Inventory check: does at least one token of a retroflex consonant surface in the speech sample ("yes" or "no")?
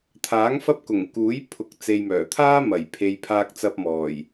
no